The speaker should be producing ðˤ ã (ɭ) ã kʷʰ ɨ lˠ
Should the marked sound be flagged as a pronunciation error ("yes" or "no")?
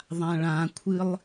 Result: no